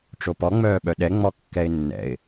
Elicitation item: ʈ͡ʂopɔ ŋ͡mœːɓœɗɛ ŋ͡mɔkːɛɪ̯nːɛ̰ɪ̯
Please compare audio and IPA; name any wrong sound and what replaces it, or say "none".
none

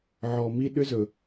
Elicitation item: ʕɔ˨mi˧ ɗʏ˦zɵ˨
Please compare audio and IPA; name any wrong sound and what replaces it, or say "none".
none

